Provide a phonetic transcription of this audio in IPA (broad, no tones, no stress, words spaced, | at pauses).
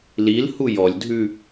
lilhu jɔlʲdʱʉ